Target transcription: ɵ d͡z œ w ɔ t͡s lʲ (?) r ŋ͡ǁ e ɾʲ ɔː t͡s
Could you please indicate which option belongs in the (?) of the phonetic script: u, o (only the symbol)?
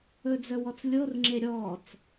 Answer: o